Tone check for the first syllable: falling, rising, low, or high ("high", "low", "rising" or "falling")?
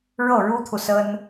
falling